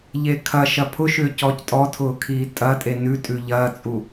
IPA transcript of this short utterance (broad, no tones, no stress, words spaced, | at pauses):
ʎekʰɐ ʃɐpʰʊʃʏː cɔːctʼɔtʰʊːkʰiː tʼɐtʼe nʉtʼʉ ʎɐːt͡sʼu